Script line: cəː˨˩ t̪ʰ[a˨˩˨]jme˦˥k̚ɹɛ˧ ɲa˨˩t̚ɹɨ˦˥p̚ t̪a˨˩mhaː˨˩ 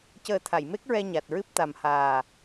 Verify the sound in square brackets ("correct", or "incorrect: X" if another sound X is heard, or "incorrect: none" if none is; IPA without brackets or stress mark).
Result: correct